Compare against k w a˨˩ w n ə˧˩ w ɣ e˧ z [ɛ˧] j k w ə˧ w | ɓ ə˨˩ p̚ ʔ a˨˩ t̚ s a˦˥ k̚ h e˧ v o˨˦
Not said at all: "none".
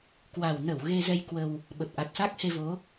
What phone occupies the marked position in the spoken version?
ɛ˧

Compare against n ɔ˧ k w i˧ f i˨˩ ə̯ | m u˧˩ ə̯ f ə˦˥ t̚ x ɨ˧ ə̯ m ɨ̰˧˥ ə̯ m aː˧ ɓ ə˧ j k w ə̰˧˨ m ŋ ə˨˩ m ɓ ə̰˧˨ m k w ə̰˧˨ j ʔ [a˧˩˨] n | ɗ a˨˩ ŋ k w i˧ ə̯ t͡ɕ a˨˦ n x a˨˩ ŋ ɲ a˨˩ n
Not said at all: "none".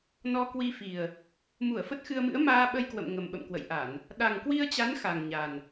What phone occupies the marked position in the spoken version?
a˧˩˨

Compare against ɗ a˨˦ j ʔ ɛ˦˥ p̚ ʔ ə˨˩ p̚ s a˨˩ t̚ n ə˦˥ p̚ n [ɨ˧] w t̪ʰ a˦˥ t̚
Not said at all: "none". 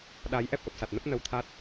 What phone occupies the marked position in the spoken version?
ə˧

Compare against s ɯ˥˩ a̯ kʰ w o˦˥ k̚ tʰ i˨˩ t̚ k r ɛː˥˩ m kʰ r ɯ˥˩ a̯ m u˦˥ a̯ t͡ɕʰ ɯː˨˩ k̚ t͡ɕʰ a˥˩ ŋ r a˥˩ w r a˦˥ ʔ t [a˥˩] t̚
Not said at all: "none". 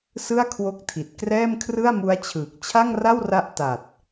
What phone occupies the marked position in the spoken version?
a˨˩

